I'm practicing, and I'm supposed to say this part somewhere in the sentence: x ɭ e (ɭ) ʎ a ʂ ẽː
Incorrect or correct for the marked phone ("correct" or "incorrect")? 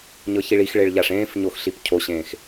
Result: correct